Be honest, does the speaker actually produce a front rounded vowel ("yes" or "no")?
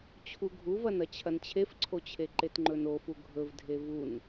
no